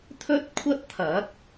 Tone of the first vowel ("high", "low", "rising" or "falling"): high